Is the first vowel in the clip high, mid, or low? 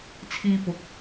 high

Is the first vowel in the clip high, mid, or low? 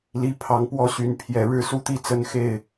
high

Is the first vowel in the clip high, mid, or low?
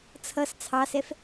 mid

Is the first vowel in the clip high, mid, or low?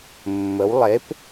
mid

